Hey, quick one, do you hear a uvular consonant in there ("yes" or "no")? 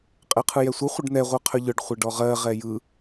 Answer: yes